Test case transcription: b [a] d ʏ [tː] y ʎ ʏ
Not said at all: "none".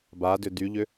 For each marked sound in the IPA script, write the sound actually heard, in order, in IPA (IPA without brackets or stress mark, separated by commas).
a, d